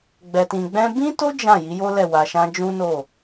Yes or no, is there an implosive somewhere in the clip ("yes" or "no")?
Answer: no